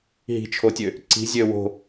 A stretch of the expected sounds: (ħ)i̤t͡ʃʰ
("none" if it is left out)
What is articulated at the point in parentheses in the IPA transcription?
ɦ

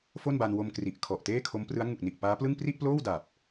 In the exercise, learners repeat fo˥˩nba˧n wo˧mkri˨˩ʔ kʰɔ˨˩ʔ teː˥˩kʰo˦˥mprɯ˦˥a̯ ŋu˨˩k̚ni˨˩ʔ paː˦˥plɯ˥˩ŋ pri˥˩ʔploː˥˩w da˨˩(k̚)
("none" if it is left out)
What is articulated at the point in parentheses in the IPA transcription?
p̚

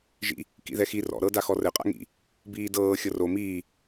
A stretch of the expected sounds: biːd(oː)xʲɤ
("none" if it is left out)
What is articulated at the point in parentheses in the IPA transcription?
ɤː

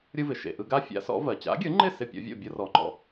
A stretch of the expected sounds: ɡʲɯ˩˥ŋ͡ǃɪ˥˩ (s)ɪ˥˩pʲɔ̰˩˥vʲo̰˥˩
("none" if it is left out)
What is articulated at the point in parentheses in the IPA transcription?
s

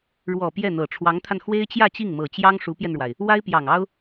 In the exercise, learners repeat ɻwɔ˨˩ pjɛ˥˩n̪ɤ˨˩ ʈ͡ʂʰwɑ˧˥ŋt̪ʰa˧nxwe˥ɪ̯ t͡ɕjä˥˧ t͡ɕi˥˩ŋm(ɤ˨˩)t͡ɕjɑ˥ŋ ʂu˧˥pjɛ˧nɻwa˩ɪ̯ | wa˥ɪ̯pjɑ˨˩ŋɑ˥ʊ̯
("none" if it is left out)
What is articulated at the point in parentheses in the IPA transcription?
ɤ˨˩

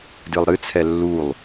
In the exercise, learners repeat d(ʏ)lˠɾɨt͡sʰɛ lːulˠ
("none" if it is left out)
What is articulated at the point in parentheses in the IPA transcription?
ɨ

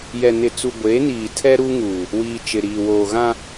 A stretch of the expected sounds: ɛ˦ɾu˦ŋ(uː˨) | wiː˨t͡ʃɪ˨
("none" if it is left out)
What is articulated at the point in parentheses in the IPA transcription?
uː˨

